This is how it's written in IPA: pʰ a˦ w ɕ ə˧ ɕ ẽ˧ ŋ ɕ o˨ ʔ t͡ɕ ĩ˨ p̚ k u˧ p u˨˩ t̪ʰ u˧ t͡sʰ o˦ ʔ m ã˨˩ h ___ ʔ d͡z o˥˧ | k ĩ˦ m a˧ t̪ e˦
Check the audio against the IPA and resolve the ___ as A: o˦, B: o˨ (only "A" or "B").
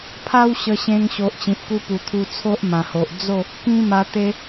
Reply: B